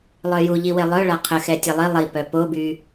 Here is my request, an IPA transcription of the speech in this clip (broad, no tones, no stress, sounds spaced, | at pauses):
lˠ œ j u ʎ i w e lˠ œ ɭ a qʰ ə x ɛ tʲ ɛ lˠ i lˠ i p œ p o b y